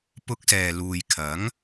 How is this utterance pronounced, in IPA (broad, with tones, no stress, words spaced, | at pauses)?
pʊ˧k̚sɛː˨luː˨jkʰɐ˨˥ŋ